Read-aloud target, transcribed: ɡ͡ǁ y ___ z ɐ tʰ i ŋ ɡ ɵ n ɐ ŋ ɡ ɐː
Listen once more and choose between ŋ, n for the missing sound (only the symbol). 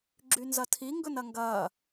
n